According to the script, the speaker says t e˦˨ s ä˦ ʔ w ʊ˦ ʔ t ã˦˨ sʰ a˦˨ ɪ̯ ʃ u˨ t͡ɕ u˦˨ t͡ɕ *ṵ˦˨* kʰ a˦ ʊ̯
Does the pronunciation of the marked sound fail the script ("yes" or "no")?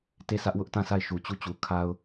yes